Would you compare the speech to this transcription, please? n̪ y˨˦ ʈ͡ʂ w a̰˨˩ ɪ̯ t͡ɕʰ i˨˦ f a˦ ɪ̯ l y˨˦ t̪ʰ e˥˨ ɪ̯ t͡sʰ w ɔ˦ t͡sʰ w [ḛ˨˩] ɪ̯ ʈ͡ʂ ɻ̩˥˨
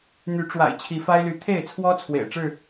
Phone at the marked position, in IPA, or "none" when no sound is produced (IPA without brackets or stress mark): ḛ˨˩